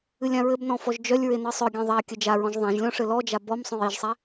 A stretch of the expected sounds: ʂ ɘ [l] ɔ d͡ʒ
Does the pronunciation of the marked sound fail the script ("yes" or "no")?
no